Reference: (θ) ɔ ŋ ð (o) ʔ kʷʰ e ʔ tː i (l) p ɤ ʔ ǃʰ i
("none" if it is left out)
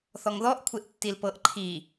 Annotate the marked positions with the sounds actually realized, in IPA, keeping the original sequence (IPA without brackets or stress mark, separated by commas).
θ, ɔ, l